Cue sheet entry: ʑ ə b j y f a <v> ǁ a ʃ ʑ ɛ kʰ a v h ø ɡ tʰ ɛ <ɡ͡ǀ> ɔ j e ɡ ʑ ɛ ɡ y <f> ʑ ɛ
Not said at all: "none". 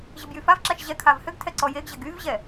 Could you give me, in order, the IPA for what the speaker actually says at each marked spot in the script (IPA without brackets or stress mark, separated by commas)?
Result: v, ǀ, v